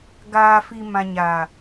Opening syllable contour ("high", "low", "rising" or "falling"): low